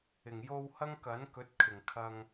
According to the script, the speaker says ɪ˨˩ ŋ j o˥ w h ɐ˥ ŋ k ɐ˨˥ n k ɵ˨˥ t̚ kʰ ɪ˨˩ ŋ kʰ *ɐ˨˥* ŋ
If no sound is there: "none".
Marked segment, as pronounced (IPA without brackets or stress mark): ɐ˧